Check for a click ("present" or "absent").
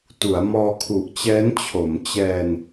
absent